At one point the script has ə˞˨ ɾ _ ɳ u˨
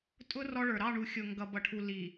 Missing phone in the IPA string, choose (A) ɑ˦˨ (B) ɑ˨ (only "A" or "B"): A